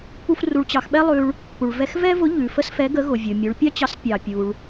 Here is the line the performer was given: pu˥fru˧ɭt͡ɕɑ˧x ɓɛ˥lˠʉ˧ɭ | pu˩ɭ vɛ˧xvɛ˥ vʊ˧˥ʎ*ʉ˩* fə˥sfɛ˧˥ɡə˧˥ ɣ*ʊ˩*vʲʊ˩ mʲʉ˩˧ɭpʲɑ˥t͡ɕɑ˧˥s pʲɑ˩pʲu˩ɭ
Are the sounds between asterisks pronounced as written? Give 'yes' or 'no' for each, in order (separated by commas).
yes, yes